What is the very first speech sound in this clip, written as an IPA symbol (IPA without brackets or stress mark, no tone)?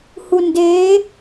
h